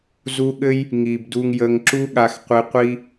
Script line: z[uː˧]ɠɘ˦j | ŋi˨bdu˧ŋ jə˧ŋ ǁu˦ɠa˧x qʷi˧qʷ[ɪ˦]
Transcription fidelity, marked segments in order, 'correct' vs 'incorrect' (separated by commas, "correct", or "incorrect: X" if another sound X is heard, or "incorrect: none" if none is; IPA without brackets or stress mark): incorrect: u˧, incorrect: i˦